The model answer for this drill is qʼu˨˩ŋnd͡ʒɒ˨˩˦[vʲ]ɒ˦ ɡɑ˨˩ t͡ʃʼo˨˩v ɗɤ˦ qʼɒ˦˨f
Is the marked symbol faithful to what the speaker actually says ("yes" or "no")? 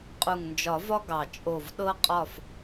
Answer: no